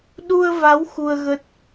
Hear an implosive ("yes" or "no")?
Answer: yes